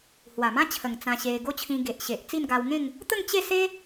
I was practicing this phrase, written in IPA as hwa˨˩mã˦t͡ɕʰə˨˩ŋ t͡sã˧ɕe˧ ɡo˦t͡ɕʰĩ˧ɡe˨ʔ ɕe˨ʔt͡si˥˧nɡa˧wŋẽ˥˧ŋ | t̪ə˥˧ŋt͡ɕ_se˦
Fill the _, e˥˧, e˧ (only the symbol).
e˥˧